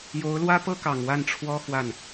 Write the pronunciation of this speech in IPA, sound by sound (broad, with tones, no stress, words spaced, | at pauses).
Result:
jo˧˥ʊ̯lwä˥pɤ˥kɑ˨˩ŋ wa˥˩nʈ͡ʂʰwɔ˥ xwa˥˩n